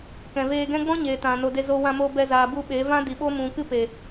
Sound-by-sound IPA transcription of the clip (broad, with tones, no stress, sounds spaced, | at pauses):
k ɛ̃˨ v eː˧ ɡ ɛ̃˦ ɡ͡b ɔ̃˦ ɲ eː˨ t ã˨ n o˨ d e˧ z o˧ w ã˧ m o˧ b ɛ˧ z aː˨ b u˧ ɓ e˨˦ v ã˦ d i˨ ɓ o˦ m ũ˨ k ɨ˦ p e˨